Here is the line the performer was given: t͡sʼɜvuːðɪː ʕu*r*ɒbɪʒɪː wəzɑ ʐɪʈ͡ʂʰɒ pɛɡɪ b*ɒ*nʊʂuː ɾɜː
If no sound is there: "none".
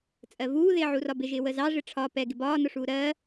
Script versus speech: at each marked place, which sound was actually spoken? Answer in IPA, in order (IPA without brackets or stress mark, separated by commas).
r, ɒː